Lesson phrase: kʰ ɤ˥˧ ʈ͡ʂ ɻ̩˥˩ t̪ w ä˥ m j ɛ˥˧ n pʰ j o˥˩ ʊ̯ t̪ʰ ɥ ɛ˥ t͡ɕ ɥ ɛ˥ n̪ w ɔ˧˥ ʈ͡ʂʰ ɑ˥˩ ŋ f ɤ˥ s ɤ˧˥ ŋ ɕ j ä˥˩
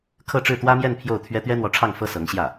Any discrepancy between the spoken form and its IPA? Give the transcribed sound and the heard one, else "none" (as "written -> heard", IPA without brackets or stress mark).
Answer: t͡ɕ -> t̪